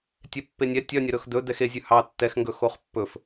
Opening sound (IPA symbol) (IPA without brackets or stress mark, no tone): tʲ